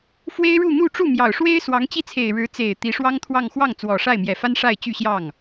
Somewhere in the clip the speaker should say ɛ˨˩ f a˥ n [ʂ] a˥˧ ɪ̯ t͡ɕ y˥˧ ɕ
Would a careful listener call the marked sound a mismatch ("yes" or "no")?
no